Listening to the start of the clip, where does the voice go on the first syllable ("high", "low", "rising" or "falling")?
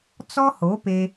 high